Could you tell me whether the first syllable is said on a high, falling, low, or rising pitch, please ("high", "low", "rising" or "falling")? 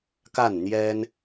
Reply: falling